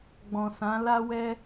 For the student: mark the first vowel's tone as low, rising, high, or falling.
low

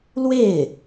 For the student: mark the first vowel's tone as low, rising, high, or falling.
falling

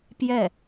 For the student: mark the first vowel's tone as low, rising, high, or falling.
falling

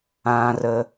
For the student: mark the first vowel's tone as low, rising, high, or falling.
low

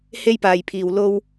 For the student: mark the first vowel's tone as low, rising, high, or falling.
high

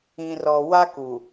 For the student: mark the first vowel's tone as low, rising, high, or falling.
low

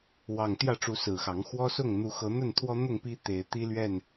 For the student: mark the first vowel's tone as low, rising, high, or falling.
low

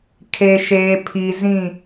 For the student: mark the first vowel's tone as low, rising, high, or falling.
low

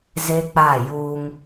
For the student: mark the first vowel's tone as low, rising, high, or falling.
high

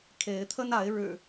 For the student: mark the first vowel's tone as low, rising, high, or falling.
rising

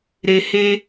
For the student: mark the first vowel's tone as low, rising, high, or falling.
low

